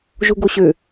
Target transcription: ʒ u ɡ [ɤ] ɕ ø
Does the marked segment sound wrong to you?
yes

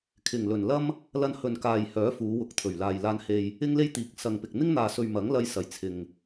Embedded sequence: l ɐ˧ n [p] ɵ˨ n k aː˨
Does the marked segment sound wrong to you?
yes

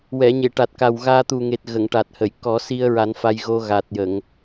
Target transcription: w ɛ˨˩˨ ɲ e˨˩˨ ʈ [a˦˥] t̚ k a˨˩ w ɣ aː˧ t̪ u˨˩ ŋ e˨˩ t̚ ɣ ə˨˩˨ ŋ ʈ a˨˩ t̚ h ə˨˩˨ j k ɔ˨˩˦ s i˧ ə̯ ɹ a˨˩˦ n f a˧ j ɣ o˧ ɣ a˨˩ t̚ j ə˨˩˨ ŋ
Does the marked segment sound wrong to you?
yes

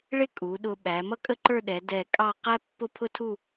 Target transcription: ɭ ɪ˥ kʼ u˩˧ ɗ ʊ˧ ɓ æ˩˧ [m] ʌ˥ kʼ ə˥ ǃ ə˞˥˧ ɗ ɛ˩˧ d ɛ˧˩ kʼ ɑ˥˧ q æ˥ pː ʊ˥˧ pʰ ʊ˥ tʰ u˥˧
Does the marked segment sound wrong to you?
no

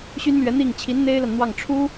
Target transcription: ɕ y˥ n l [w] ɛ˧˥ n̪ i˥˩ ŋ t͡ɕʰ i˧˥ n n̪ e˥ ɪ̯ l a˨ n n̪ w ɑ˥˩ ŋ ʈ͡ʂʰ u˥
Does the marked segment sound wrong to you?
yes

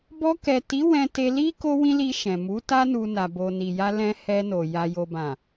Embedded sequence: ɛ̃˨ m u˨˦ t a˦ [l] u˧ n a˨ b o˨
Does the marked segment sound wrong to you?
yes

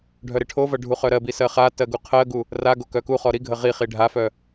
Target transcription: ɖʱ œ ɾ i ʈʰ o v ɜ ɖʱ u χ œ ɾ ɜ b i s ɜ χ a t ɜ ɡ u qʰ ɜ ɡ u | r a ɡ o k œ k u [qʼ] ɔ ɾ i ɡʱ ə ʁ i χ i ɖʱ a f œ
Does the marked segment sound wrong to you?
yes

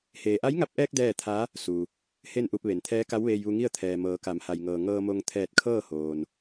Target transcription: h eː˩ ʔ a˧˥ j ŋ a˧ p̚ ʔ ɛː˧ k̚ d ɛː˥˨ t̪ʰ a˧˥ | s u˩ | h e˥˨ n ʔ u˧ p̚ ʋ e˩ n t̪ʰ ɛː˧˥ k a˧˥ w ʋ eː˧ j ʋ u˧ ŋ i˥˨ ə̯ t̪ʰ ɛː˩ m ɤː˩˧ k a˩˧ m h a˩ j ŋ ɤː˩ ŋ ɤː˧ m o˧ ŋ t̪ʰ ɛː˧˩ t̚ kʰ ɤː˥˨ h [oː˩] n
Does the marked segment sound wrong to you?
no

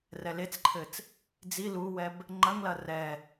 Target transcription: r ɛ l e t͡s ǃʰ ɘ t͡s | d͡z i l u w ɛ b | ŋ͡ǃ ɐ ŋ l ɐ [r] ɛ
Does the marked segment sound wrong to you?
no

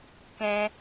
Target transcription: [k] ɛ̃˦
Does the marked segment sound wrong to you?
no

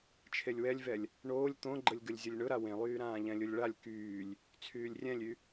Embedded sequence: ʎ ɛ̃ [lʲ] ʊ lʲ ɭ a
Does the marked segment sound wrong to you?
no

